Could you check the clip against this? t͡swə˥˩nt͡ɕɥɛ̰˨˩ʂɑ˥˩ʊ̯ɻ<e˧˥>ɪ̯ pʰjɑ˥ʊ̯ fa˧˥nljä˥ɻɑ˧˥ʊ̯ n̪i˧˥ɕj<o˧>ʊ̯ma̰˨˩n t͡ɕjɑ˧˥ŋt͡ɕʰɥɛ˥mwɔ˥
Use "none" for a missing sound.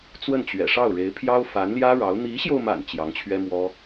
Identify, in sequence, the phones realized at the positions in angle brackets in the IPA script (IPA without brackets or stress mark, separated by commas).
e˧˥, o˧